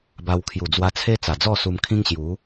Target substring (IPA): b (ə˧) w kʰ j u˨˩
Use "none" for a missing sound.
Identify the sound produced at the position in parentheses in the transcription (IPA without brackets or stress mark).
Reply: a˧